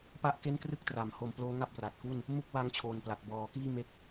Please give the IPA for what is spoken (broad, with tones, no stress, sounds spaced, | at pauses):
p a˥˩ ʔ k e˥˩ n k r ɯ˥˩ k̚ t r a˩˦ m h o˧ m p l oː˦˥ ŋ a˥˩ p̚ r a˨˩ t̚ k u˥˩ n | m u˥˩ k̚ w a˦˥ ŋ t͡ɕʰ oː˨˩ n p l a˨˩ t̚ b ɔː˩˦ k iː˥˩ m e˦˥ k̚